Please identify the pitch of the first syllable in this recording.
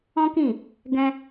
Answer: high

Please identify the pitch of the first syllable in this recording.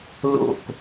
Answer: falling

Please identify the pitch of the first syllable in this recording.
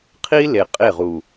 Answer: high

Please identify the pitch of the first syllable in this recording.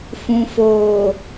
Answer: low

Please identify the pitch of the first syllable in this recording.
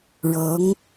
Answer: rising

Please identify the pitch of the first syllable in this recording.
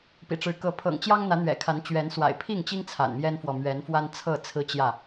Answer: low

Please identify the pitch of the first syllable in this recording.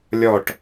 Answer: falling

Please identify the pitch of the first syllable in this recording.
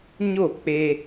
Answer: falling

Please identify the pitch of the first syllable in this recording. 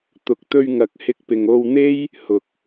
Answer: rising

